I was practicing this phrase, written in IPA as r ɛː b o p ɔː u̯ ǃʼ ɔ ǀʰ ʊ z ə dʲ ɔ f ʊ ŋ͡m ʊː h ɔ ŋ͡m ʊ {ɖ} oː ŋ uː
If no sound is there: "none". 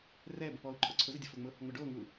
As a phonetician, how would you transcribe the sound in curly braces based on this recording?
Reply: ɖ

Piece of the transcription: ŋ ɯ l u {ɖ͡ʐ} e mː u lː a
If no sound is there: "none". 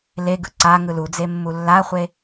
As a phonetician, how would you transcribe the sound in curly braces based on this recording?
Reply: d͡z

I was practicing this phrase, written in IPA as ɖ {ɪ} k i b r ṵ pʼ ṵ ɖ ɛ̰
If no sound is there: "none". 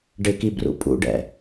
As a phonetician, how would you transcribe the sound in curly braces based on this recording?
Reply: ɪ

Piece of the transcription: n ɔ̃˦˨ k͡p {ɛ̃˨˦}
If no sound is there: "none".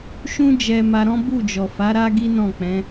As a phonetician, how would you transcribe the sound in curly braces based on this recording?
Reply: ɛ̃˨˦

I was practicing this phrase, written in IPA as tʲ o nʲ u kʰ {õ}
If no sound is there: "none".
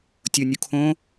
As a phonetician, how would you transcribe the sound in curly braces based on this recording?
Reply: õ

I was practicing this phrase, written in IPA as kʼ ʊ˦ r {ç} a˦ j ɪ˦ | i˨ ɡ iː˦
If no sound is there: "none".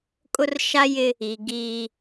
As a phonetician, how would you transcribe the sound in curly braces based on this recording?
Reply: ʃ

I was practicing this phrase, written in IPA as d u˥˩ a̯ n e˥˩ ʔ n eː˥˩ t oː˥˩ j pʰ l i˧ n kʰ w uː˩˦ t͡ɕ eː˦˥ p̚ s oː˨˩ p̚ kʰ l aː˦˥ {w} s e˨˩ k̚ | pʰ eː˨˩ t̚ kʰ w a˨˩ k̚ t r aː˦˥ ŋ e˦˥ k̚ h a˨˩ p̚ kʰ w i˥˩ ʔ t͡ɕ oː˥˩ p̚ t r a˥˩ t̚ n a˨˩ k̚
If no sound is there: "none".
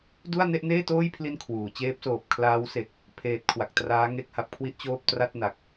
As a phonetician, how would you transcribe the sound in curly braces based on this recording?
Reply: w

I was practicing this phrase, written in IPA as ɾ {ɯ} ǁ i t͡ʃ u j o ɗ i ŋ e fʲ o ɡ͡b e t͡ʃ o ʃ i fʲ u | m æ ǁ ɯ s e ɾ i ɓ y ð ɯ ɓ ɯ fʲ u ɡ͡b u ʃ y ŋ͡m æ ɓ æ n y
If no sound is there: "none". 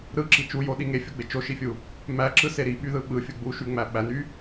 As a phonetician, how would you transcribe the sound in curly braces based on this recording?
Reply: ɯ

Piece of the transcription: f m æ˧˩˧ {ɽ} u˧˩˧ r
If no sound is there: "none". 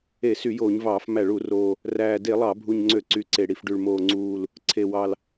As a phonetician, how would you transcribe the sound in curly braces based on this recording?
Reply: ɭ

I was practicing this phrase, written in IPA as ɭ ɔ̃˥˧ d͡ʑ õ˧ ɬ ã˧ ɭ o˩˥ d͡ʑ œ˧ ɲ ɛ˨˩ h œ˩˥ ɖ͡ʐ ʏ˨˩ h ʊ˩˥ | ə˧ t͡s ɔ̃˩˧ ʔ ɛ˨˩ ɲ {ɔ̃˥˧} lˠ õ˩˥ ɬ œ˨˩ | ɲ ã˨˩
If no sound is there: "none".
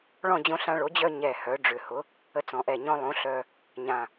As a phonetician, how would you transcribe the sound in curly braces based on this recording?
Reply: ɔ̃˧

